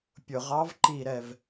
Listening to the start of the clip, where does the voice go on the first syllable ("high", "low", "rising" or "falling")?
low